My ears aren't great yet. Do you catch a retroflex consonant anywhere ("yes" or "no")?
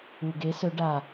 yes